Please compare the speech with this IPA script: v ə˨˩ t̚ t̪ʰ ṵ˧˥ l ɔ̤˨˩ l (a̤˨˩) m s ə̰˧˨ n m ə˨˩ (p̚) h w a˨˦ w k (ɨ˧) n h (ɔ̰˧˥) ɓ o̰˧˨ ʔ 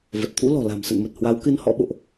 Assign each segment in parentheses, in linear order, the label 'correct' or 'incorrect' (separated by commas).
correct, incorrect, correct, correct